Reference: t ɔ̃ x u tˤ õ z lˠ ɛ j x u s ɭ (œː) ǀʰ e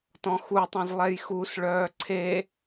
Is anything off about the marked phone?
no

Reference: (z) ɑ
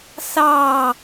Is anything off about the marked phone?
yes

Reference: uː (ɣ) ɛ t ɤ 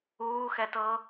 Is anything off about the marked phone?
yes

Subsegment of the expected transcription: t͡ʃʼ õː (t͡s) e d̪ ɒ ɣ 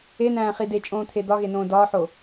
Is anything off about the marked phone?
yes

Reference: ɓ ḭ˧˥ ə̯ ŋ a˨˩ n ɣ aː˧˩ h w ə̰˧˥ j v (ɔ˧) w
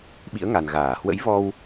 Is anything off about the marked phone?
no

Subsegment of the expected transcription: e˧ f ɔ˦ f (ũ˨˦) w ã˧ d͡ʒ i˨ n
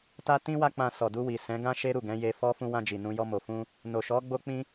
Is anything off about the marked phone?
yes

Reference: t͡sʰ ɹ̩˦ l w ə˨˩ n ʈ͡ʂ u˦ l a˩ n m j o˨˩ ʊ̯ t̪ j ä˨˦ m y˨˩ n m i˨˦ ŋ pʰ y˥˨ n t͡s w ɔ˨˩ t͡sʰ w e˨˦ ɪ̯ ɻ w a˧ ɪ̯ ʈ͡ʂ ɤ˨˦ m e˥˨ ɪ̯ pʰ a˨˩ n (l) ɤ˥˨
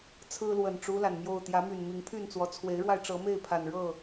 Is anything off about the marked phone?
yes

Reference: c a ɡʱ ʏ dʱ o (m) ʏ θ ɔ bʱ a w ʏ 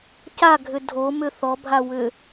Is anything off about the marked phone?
no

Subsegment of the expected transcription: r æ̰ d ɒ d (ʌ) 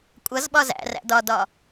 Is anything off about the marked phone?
yes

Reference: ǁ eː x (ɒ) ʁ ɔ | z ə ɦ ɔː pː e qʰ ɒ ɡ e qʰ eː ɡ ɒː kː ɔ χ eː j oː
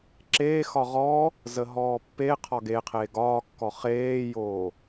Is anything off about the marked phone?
no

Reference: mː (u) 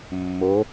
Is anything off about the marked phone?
yes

